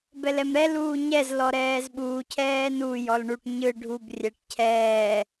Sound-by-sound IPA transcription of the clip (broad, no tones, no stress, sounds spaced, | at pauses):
b ɛ l ɛ m ɾ ɛ l uː ɲ ɛ z l ɔ ɾ ɛː z ɓ uː cʰ ɛː n u j ɔ l ɳ u ʈ ɲ ɯ ɖʱ u b rʲ ɛ ʈ cʰ ɛː